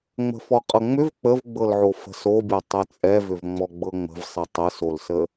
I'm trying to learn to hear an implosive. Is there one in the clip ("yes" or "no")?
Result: no